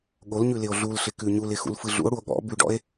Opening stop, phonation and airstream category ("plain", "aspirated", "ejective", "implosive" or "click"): implosive